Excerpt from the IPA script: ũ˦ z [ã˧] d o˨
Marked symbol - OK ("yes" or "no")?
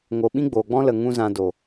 yes